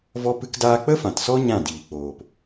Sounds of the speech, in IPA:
vɔ˦pɨ˦kdaː˦ k͡pə˦fã˨tsɔ˦ ɲã˦˨diː˨ k͡poː˨p

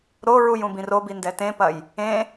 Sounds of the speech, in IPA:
ɾoɹuj ũbĩrobi ndɛtẽpɐj | ẽ

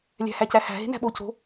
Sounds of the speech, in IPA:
lʲæ̤hæcæhæ̤ ɦe̤næ̤ɓo co̤

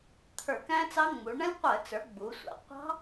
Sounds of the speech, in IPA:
t̪ʰə˞˧˩˧kæ̃˦˥ t͡sɑ˦˥ŋ͡mu˩˧ ɳə̃˦˥lʲqʷə˧˩˧t͡sə˞˩˧ ɡ͡bu˩˧sʷæ̰˩˧ qʷɑ̤˦˥

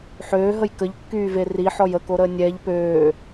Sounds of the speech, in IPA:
ħøːɦəj kəʎkːyːve riħɔj əkoɾəː nʲɛʎ pøː

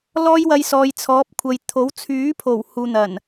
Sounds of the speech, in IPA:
lɔː˥jwɐ˧jsɔː˨j t͡sʰɔː˨˥p̚kʷʰɐ˨j t̪ʰo˨˥wt͡sʰyː˨˥pʰo˨˩w huː˨n̪ɐ˨˩n

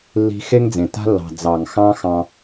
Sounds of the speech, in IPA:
lːi̤˦ xe˦ŋd͡zẽ˨ ta̤˦lːɑ̤˨ d͡zɑ˨ŋxɑ̃˦ xɑ̃˦

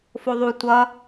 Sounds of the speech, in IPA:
foðˤu tʷʌ

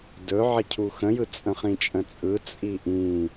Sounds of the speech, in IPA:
dɵ ʕəcʰuxə̃jɯ t͡sʼə̃χĩt͡ʃʼə̃t͡sʼɯ t͡sʼiʔĩ

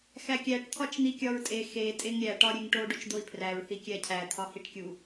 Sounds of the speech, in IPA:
xækʲæʈ t̪ʰɒt͡ʃn̪ikʲɒɹtʼe xe tʼeŋɾʲæ ʈɒɾʲeŋʈo ɖot͡ʃd̪oi̯pʰræɹ θikʲæcʰæ t̪ʰɒhiʈkʲu

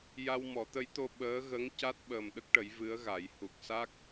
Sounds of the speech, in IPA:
ja˧wmɔ˨˩˦t̪ə˧˥jt̪o˧ ɓəː˧˥ɣə˧˥ŋ ca˦˥t̚ ɓəː˨˩mɗə˦˥k̚ʈə˨˩˦j vɨ˧˥ə̯ɣa˨˩˦j hu˨˩k̚sa˦˥k̚

